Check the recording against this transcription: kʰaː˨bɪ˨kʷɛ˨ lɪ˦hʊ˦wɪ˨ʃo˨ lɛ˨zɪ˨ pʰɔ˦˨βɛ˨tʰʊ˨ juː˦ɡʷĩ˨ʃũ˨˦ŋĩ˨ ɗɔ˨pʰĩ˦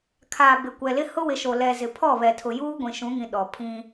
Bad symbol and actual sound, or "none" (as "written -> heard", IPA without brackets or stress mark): none